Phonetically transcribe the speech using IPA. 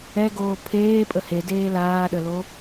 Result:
ɛ ɡ oː pʰ eː pʼ ə h e d eː l aː ɗ ə l o

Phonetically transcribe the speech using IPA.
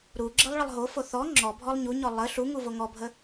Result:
ɾ u ɡ͡ǁ ə lˠ ɭ ə lˠ ɦ o f o θ ɔ ŋ͡ǁ ɔ bʱ ɔ lˠ ɲ u ɲ ɔ lˠ ə ɬ u ŋ u v o ŋ ɔ bʱ ə

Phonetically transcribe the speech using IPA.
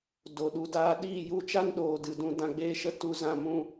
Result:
d o˨ ɗ u˨ d aː˧ ɗ iː˦˨ j u˧ t͡ʃ a˦ n ɗ oː˨ d ɨ˨ d ũ˧ d ã˧ ɡ͡b eː˦ ʃ ə˦ t u˧ z ã˦˨ m ũ˦

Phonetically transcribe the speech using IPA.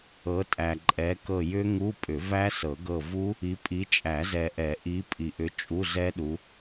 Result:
ɤ˨˦ tʼ æ˨ ǃʼ ɛ˨˦ k ɤ˦˨ j ʏ˦˥ ŋ u˧˥˧ pʼ ʏ˨˩˦ v æ˦˥ s ɤ˨˩˦ ɡ ɤ˦˨ v u˦˥ | i˨˦ pʼ i˨˦ t͡ʃʼ æ˨˩˦ z ɛ˨ ʔ ɛ˨˩˦ ʔ i˨˦ pʼ i˨ ʔ ʏ˨˦ t͡ʃʼ u˧˥˧ z ɛ˦˥ ɗ u˨˦

